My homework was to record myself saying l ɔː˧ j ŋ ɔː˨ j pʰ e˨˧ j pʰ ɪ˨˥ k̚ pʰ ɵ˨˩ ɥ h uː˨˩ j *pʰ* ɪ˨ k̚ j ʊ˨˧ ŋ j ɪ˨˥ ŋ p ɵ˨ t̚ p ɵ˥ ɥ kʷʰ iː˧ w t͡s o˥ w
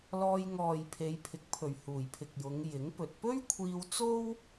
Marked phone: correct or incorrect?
correct